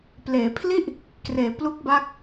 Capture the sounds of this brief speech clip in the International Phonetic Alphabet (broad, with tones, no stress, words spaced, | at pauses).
pleː˩˦pʰli˥˩ʔ | kreː˩˦plu˦˥k̚ba˦˥k̚